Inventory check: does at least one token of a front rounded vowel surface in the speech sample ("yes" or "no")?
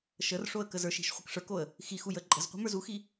no